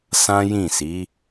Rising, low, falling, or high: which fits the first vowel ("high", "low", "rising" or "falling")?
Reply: high